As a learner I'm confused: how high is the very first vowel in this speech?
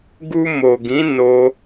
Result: high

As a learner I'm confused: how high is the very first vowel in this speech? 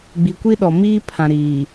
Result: high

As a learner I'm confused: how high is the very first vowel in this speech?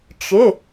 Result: high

